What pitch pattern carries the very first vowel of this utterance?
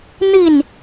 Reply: falling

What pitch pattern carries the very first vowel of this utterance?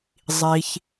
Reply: low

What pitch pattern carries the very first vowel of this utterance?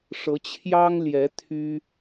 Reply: rising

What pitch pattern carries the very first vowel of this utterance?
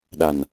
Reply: low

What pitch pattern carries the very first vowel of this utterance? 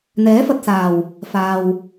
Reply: rising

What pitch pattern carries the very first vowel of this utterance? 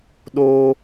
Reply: high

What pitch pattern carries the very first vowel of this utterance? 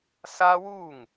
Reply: high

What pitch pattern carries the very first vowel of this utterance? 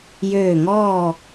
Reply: falling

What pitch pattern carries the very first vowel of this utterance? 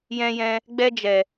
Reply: high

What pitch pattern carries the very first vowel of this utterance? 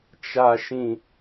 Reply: low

